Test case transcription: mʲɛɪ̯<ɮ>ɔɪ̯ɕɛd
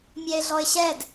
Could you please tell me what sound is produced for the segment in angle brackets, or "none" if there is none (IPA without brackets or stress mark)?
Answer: ɮ